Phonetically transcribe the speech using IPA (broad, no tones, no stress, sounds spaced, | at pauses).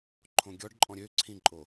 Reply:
ǃʰ õ ɡʲ ɔ ɖ ǃʼ ɔ̃ ɾʲ ø ǀʰ ĩ ǃʼ o